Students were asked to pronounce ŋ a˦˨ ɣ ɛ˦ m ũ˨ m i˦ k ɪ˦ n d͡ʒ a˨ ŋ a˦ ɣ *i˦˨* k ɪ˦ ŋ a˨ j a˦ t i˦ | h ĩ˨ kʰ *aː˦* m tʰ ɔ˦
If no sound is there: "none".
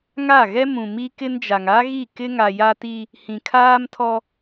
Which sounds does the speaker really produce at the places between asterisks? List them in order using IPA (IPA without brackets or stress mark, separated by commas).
i˦˨, aː˦